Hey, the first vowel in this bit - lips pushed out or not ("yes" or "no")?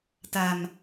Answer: no